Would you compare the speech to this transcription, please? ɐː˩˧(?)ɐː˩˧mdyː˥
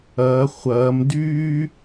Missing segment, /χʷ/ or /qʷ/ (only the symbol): χʷ